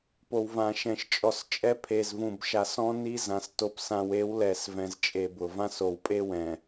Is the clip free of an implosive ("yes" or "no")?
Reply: yes